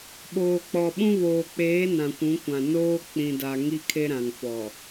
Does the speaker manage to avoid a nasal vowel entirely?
no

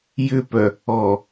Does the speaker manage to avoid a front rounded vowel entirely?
no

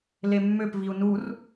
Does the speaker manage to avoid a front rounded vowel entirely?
no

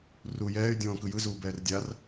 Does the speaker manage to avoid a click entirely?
yes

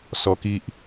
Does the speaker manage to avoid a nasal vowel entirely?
yes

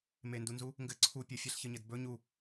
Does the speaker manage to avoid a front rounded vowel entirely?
yes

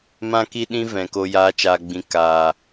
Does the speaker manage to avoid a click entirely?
yes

